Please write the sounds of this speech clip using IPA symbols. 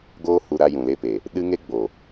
ɡoː˦hu˧ ɾa˧jũ˨le˧pe˨ | ɗɨ˦ ŋe˦ɡ͡bo˨

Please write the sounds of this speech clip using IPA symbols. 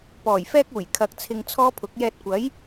pɔː˨˩jfɛː˥k̚uː˨˩j kʰɐ˨k̚ t͡sʰɪ˧ŋt͡sʰɔː˥pʰʊ˨˥k̚ jɛː˧t̚kʷɐ˨˥j

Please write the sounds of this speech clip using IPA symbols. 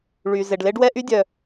ɭy˩ ze˩ɖle˥ɖwɛ˥ ʔy˥dʲœ˩

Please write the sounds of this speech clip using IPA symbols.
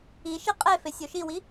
iʃi qʼefe sʲoʃiwi

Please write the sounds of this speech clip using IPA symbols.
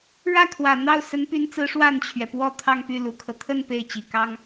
ɻä˥˩kʰwä˨˩n̪ɑ˥˩ʊ̯ sə˧˥npy˧˥nt͡sɹ̩˧˥ ʂwa˥˩nt͡ɕʰɥɛ˩ pwɔ˥˧ t̪ʰɑ˥˧ŋpy˥˩ lu˨˩kʰɤ˦ t̪ʰə˥˧n pe˥˩ɪ̯t͡ɕi˨˩kɑ˥ŋ

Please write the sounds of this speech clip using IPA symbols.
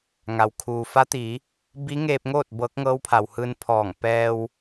ŋa˩wkʰuː˩fa˧˥t̪iː˩˧ | bi˧˥ŋeː˧p̚ŋoː˥˨t̚ bɤː˧˥k̚ŋɤː˧˥wpʰa˩whɯː˧n pʰɔː˧˩ŋ pɛː˧w

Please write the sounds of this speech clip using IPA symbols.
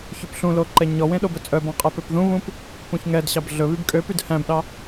çøpɬũlo ǃɛɲɔwẽ ɗobɵt͡sʼœbɑ̃ qʼɛpøpðũβũp | pũçŋɛdɕɑb ɮɵ βybkʼøpyd hæ̃bɗɑ

